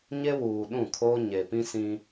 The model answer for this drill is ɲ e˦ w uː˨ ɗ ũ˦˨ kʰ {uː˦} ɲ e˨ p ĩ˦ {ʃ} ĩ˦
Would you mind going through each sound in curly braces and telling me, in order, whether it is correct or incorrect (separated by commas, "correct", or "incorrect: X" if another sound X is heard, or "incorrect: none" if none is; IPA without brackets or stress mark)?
incorrect: oː˦, incorrect: s